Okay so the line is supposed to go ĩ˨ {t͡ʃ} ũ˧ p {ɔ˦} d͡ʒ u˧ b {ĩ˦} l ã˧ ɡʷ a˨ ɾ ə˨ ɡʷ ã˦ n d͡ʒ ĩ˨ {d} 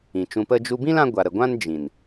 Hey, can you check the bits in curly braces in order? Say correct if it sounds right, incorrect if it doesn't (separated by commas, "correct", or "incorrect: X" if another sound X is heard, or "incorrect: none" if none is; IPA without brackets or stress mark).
correct, incorrect: ə˦, correct, incorrect: n